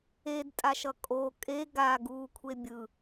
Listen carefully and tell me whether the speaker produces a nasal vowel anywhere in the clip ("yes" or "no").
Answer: no